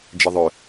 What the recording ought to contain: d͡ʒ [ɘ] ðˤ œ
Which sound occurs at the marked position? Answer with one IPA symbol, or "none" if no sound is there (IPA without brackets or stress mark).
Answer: ɘ